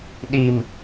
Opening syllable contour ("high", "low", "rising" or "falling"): low